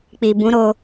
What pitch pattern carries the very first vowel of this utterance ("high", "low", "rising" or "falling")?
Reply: low